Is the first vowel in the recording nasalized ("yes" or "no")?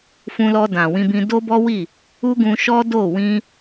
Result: yes